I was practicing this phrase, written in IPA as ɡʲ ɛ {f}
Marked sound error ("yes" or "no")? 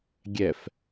no